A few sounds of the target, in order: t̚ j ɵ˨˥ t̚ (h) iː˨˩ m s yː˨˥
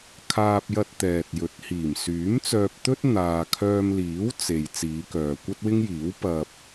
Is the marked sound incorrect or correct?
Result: correct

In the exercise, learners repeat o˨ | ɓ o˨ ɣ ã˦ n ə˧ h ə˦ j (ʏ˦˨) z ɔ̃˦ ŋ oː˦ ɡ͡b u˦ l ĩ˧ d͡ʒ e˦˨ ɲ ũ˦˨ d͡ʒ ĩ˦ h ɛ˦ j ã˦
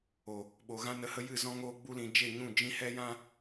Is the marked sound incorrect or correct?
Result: incorrect: ɨ˦˨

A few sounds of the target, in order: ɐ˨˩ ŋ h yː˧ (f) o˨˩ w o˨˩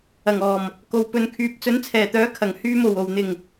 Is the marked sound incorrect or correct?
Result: incorrect: m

